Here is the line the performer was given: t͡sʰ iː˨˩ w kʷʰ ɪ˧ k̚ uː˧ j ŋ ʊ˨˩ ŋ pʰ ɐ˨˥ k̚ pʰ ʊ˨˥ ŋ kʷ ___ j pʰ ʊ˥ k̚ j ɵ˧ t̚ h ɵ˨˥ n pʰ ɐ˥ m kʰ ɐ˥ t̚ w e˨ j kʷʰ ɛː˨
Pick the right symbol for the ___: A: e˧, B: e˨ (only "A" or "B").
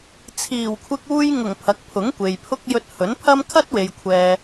B